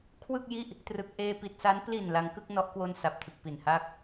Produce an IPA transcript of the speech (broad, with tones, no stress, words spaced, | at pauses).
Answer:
kʰwɯ˥˩k̚ji˥˩ʔ | trɯ˨˩k̚ʔeː˧pi˨˩t̚sa˦˥n pli˨˩n la˧ŋkɯ˥˩k̚nɔ˦˥ʔ kwo˧n sa˨˩p̚tʰɯ˨˩k̚pi˨˩n ha˦˥k̚